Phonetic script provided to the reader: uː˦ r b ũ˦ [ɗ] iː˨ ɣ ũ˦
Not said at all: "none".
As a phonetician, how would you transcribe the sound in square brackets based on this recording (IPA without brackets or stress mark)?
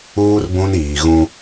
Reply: n